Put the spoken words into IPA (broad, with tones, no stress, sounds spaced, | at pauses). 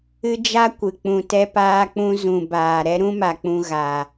ɨ˦ d͡ʒ a˦ kʷ ɨ˨ k͡p ũ˨ t ɛ˧ p aː˧ k͡p ũ˧ z ũ˨ b aː˨ ɾ ɛ˦ ɾ ũ˦ m a˨ k͡p ũ˧ ɣ a˧